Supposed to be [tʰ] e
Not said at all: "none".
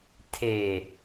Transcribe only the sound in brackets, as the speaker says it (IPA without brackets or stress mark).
tʰ